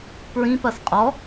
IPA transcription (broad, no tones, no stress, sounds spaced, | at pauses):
p ɹ ĩ p ɐ s qʼ ɔ